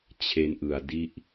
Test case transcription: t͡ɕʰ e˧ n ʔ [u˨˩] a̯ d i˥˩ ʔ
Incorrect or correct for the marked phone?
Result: incorrect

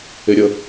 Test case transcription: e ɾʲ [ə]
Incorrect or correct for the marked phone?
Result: correct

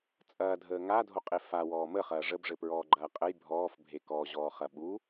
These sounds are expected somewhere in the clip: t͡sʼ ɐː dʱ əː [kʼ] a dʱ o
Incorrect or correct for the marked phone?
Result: incorrect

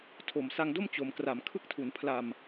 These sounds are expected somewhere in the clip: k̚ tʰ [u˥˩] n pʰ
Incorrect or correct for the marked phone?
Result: incorrect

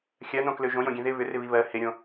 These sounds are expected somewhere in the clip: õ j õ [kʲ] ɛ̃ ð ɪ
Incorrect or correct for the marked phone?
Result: incorrect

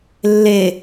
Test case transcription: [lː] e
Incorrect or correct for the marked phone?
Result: correct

